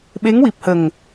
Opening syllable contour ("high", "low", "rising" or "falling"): rising